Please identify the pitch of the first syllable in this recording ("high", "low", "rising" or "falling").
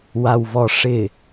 low